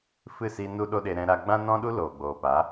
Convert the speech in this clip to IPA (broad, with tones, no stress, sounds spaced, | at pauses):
f ɨ˦˨ s i˧ n u˦ ɗ o˦ ɗ e˧ ɾ ɛ̃˧ ɾ a˧ ɡ͡b ã˦ n ɔ̃˦ ɗ u˦ l oː˨ ɡ͡b oː˨ p a˨˦